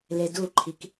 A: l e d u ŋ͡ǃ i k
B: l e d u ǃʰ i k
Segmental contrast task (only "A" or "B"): B